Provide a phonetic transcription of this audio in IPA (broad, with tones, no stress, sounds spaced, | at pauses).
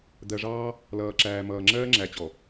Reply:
d̪ ɜ˨ ʐ ɑː˦ | l ʌː˨ ǁ æː˨ m ʌː˨ ŋ͡ǁ ɜː˦ ŋ͡ǁ æ˨ t͡ɕ ɔ˨